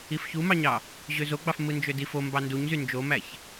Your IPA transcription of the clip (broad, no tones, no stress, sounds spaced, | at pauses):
i f ç u m ɑ ɲ ɑ | ʑ ø z o ɡ͡b ɑ f m ɯ n d͡ʒ ø d i f o m b ɑ n d u ɲ z y n d͡ʒ o m æ ç